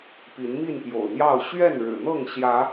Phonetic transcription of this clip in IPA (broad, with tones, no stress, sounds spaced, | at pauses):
p i˨˦ n m i˥˨ n p j o̰˨˩ ʊ̯ n̪ j ɑ˥˨ ʊ̯ ɕ ɥ ɛ˥˨ n ɻ ɻ̩˨˩ n̪ ɤ˥˨ ŋ ɕ j ä˨˦